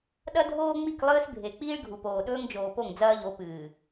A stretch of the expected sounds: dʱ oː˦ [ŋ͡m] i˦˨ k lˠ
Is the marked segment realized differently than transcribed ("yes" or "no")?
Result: no